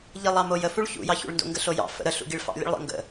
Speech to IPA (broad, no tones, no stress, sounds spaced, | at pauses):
ʎ i lˠ ɑ m o j ə f u ɭ ç ṵ j ɑ ç ṵ ɭ n d o̰ ŋ ɡ ə ɬ o j ɑ̰ f ə̰ ɾ ə ɬ ṵ ɡ i ɭ f ɑ̰ lʲ ə̰ ɭ lˠ ə̰ ŋ ɡ ə̰